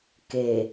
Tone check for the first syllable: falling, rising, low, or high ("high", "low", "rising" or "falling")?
low